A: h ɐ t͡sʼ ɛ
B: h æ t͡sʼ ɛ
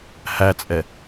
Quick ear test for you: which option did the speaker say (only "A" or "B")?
B